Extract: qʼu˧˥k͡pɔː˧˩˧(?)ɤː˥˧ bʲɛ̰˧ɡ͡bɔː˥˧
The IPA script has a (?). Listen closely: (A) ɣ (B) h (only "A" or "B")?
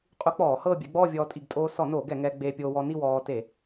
B